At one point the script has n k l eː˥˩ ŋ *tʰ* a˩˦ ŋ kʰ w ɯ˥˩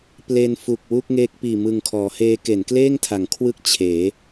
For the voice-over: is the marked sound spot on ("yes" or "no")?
yes